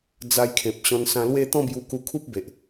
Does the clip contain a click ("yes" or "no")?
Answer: no